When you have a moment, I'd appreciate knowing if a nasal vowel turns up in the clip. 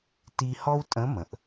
yes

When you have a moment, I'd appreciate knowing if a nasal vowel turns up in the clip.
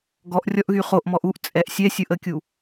no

